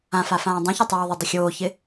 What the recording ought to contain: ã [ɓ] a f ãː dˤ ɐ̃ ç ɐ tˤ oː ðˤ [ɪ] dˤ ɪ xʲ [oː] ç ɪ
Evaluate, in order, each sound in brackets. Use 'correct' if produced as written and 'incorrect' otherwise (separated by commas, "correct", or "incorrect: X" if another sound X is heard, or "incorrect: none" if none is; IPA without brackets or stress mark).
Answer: incorrect: f, correct, correct